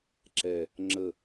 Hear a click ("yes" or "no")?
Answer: yes